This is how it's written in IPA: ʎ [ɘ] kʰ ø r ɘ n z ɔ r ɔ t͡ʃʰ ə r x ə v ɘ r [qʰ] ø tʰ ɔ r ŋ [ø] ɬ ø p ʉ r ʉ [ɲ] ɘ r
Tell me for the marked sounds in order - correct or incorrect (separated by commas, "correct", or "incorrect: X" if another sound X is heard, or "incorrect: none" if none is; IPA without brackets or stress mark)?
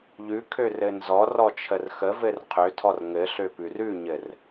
incorrect: ʉ, correct, incorrect: ɘ, correct